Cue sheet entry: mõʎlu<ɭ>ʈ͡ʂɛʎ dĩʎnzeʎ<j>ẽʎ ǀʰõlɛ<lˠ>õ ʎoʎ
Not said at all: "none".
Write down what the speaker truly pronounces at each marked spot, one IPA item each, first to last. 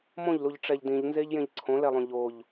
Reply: ʎ, j, lˠ

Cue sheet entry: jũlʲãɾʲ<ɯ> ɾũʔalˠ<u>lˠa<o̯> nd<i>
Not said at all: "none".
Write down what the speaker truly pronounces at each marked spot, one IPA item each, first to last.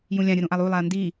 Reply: ɯ, u, ɐ̯, i

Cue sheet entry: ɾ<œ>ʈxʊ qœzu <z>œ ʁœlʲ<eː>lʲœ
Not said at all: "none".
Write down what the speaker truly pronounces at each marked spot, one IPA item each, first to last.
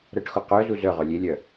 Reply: ə, z, e

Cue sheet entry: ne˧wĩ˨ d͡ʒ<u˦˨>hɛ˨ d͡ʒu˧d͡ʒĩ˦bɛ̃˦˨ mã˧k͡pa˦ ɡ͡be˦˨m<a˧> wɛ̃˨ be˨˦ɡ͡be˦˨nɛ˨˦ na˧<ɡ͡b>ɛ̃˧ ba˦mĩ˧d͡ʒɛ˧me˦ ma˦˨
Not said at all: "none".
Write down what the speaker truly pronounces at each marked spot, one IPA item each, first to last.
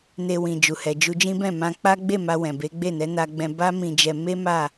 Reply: u˨, a˧, ɡ͡b

